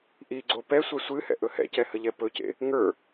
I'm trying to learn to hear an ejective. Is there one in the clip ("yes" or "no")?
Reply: no